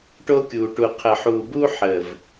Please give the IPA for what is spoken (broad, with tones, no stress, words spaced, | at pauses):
ʈo˦kʲuː˨ʈu˨ qʰə˨ħuː˨bu˦ ħə˨v